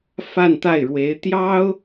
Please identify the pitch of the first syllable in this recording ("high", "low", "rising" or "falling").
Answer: falling